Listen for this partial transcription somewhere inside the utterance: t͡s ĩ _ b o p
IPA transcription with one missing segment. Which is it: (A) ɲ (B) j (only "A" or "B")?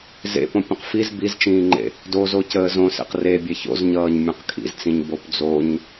A